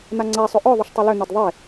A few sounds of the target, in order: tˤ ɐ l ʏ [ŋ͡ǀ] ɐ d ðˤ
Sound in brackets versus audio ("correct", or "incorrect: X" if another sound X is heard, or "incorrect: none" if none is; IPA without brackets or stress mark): incorrect: n̪